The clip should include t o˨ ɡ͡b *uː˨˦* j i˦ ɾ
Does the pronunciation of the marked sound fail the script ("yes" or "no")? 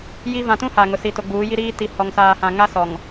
no